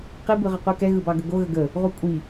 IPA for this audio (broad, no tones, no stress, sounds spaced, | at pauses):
q i b ɯ ʁ ə qʷ ɯ k ɛ ɣ ɯ b ɑ ɡ ə ɡ o ɣ ə ɡ ə | ʁ u kʷʼ i